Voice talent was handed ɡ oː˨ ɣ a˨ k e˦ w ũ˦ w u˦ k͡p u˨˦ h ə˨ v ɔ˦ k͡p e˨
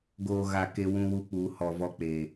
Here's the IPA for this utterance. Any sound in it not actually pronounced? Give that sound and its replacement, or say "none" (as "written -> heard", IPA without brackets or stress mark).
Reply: ə˨ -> ɔ˨